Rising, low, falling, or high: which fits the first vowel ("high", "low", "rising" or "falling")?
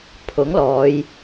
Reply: rising